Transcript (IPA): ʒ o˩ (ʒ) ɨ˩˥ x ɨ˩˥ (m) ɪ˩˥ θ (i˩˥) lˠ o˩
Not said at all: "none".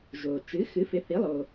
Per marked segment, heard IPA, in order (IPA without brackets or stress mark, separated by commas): t͡ʃ, f, i˩˥